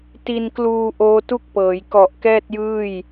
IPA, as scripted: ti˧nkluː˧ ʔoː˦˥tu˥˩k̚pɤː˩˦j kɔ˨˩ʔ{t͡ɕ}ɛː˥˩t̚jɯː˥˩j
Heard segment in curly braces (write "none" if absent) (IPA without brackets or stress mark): k